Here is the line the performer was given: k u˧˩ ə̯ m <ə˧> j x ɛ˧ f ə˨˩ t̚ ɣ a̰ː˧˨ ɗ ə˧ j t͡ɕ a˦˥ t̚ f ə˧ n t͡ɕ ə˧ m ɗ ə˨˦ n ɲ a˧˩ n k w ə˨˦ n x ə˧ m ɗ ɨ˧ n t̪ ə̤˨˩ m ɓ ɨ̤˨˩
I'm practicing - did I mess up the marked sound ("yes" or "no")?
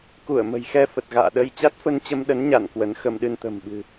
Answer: yes